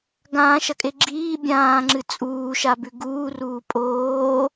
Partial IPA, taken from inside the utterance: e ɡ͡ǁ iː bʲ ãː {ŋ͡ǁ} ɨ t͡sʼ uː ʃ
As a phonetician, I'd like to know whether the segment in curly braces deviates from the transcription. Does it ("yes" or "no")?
no